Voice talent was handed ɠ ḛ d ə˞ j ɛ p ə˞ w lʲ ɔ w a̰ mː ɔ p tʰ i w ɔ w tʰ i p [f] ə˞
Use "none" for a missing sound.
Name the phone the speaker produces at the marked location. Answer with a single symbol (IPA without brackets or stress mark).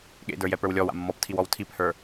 h